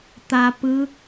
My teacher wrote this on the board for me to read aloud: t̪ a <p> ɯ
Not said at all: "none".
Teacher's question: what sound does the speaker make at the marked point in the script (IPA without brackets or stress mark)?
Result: p